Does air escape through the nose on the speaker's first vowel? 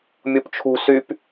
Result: no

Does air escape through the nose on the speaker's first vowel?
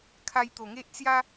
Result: no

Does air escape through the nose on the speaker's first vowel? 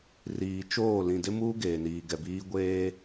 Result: no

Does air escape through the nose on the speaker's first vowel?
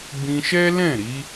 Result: yes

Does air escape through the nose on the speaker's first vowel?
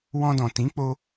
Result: yes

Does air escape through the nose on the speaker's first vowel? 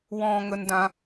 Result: yes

